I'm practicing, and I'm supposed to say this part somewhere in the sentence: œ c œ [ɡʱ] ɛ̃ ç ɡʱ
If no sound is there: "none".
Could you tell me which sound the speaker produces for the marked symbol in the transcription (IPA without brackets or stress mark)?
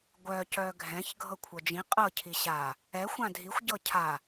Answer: ɡʱ